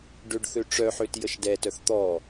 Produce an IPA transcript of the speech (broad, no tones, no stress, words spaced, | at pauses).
ɖøɖθøʈ͡ʂœħøt jəʃdɛtœθ t̪ɔ